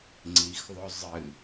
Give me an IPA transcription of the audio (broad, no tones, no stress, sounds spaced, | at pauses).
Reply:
ŋ͡ǀ i x ðˤ ɵ zˤ ɨ